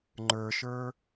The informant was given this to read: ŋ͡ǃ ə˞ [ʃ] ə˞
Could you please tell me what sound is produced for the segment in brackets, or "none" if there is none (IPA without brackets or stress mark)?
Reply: ʃ